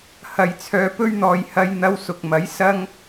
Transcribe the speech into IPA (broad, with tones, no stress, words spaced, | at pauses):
hɐ˨jt͡sʰœː˧pɵ˥ɥn̪ɔː˧j hɐ˧jn̪ɐ˧wsʊ˨k̚mɐ˨˥j sɐ˥ŋ